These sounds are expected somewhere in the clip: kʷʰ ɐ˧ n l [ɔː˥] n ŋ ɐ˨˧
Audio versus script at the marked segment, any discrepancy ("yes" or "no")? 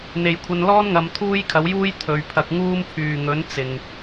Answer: no